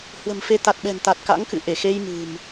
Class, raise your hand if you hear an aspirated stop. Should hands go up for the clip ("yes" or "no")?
no